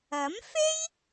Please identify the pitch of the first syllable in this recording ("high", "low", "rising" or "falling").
rising